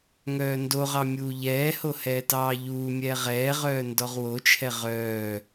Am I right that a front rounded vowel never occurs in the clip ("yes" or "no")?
no